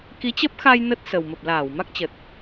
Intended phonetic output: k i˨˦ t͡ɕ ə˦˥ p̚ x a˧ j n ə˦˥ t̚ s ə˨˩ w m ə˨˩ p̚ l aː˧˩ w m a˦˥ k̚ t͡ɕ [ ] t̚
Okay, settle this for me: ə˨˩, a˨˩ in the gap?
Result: ə˨˩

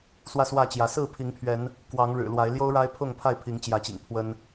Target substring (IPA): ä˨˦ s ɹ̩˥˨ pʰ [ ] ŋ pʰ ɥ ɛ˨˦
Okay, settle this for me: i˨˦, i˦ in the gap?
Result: i˨˦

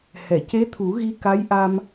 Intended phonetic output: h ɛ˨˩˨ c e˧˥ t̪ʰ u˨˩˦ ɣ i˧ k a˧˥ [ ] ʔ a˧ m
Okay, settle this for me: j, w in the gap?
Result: j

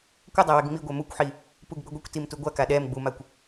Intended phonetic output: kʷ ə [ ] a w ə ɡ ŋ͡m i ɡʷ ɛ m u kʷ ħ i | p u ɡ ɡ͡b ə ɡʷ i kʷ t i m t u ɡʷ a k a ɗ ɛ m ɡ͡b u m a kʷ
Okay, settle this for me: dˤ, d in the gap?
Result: dˤ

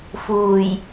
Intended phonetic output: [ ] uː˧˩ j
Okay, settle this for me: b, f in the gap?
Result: f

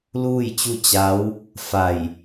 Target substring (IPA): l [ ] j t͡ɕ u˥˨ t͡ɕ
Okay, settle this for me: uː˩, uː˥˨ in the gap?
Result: uː˥˨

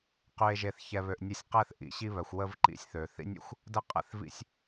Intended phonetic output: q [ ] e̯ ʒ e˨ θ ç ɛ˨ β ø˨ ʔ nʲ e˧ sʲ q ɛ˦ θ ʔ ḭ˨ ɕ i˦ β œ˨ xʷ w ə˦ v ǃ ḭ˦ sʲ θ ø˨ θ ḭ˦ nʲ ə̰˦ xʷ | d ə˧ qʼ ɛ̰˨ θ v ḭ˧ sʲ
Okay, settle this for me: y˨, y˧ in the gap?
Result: y˨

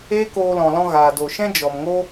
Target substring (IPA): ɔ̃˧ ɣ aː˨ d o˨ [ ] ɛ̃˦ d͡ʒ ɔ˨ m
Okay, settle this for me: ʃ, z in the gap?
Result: ʃ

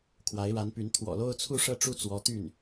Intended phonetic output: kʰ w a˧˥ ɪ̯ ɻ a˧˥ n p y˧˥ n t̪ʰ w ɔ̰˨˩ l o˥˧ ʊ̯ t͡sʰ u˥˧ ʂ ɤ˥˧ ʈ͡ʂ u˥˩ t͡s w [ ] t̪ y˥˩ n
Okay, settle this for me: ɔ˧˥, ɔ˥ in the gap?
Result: ɔ˧˥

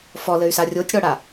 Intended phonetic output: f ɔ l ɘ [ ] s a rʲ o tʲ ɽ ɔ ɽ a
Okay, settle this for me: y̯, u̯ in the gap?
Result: y̯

